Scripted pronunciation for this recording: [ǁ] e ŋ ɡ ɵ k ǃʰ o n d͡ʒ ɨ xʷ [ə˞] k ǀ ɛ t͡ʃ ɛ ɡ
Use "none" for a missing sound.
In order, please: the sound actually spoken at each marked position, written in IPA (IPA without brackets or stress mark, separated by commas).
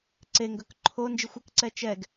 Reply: ǀ, ə